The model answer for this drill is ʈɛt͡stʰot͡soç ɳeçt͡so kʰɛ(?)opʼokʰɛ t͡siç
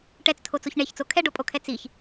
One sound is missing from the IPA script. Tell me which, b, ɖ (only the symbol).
ɖ